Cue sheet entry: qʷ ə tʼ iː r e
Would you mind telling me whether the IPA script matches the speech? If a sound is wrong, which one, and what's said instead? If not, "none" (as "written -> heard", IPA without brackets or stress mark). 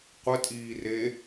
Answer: none